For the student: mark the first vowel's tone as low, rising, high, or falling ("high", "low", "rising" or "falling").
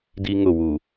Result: high